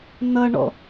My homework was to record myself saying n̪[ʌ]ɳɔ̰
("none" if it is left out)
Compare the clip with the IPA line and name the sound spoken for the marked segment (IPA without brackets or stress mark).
ʌ